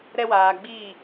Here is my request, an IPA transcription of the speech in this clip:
ɾ ɛ˧ w aː˨ ɡ͡b i˦˨

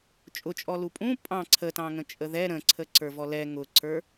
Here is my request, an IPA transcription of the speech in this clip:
t͡ʃʼ ʊ t͡ʃʼ ɔ l u pʼ ũ pʼ ɑ̃ ǀʰ ə t ɑ̃ ŋ ə̃ t͡ʃʼ ə ð ɛ ɾ ə̃ ǀʰ ə ǀ ə˞ v ɔ l ɛ ŋ ʊ ǀ ə˞

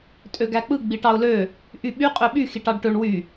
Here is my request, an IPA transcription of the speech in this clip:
tʼ ø ɡ æ k͡p ɯ ɡ͡b i ʈ ɑ ʊ̯ l ø | ʔ y ɓ y qʼ ø ɓ y x i ʈ ɑ ɖ ʈ ø ɳ w y

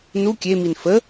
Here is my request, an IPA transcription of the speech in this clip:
n u kʲ e m i n f ə

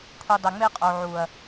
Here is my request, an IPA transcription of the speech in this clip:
kʷʰ i˨ dˤ ɛ˨ ŋ͡m e˦ qʼ o˨ ʕ u˨ ɐ̯

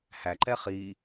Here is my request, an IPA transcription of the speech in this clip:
h æ ǃ ɛ χ i

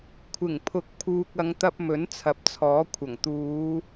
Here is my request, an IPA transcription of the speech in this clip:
kʷʰ ɪ˨˩ ŋ pʰ ʊ˨˥ k̚ pʰ uː˨ k̚ ɐ˨˧ ŋ t̪ ɐ˧ p̚ m ɵ˨˥ n t͡sʰ ɐ˨˥ p̚ t͡sʰ ɔː˨˥ kʷʰ ɐ˨˩ ŋ t̪ uː˨˧

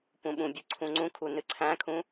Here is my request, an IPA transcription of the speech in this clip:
p ũ ɓ ũ bʲ ɨ ǀʰ ũ ŋ͡ǀ ũ kʰ u n ɨ ǀʰ æ̃ kʰ ũ

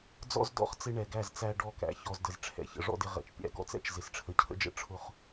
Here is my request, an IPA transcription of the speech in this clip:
d͡z ɔ̰˦ z d ɔ̰˦˨ χ t͡s ɪ˦ ɳ ɛ˨ ɡ æ˦˨ z t͡s æ˦ ɖ ɔ˦˨ k æ̰˨ ç ɔ˨ z d ə˨ z ʈ͡ʂʰ ɛ̰˨ ç ə̰˨ ʐ ɔ̰˦ d ɪ˦ ʁ ɛ̰˨ t͡ʃ pʲ æ̰˨˦ ɡ ɔ̰˦ t͡s ɛ̰˦ t͡ʃ z ɪ˨ s ʈ͡ʂʰ ə˨ cʰ ə̰˦ d͡ʒ ə̰˦ ʈ͡ʂʰ ʊ˦˨ χ

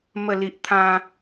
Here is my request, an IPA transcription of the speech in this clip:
m ə˥˧ l i˦ ʔ t̪ʰ ã˦

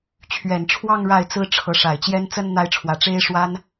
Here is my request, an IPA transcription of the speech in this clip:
t͡ɕʰ ɥ ɛ˨˩ n ʈ͡ʂʰ w ɑ˥˧ ŋ ɻ a˥˩ ɪ̯ t͡s ɹ̩˥ ʈ͡ʂʰ ɤ˧˥ ʂ a˨˩ ɪ̯ t͡ɕ j ɛ˥ n t͡s ə˥ n n̪ a˥ ɪ̯ ʈ͡ʂʰ w ä˧˥ ʈ͡ʂ e˥ ɪ̯ ʂ w a˥ n

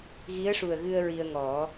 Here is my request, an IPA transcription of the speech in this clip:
ɣ i˧˥ ə̯ ʂ u˨˩ ə̯ ɣ ɨ˧ ə̯ ɹ i˧ ə̯ ŋ ɔ˨˩˦

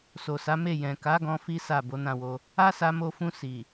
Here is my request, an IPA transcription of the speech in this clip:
s o˨ s a˨˦ m e˦˨ j ɛ̃˨ k a˨˦ ɡ ɔ̃˧ f i˦ s a˦˨ b o˨˦ n ã˦˨ w o˧ | a˦ s a˧ m o˧ f ũ˧ s i˨

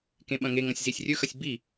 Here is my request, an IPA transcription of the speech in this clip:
k ẽ ɓ ɐ̃ ŋ e ŋ ɐ̃ sʲ z i sʲ rʲ ɵ x ɐ sʲ b i

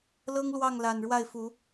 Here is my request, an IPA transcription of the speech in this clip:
l ɤ˦ ŋ l w ɑ˥˨ ŋ l a˨˩ n ɻ w a˥˨ ɪ̯ f u˨˦

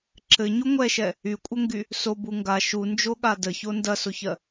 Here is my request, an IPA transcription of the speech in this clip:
ǁ ɘ ɲ u ŋʷ ɛ ʃ ɛ | y kʷʼ ə ŋ ɡ y | s o b u ŋ ɡ a ʃ u n d͡ʒ o ɠ a d ə ç o n d ɐ s o ç ɜ

